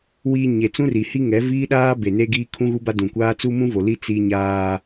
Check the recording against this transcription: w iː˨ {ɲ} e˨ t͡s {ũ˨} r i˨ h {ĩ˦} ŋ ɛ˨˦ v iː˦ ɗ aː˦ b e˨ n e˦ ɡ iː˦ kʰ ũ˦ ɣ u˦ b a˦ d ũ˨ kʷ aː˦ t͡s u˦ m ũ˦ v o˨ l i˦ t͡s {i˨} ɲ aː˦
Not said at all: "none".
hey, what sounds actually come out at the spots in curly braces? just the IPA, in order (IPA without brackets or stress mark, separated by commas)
ɲ, ũ˦, i˦, i˦